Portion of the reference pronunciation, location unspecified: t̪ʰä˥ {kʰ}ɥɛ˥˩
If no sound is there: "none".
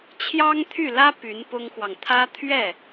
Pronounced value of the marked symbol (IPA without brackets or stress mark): t̪ʰ